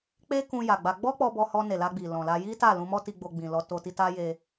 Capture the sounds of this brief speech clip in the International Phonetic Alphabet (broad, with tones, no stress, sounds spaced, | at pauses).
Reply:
k͡p e˦ k ũ˧ j a˨ ɡ͡b a˧ ɡ͡b ɔ˦ k͡p ɔ˧ b ɔ˧ h ɔ˧ n e˨ l a˧ ɡ͡b i˨ l ɔ̃˨ l a˧ j i˦ t a˦˨ l ũ˧ m ɔ˦ t i˧ ɡ͡b o˧ ɡ͡b ĩ˨ l ɔ˧ t o˧ t i˧ t a˧ j e˧